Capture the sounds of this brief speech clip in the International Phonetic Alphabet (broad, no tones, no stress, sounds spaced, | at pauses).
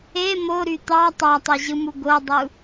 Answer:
e m o ɾ y t̪ ɑ tˤ ɑ tˤ e ʑ ɯ m u ɡ o dˤ u